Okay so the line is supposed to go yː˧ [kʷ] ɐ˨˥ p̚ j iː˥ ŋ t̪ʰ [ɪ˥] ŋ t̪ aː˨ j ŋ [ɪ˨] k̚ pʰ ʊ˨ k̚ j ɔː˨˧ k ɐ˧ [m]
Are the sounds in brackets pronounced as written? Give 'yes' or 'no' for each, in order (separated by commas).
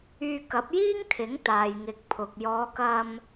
no, no, yes, yes